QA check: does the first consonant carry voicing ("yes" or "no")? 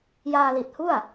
yes